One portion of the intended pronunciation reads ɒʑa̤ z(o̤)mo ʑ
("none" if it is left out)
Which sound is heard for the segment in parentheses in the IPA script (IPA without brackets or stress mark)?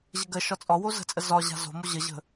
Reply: o̤